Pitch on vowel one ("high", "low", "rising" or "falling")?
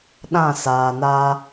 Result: falling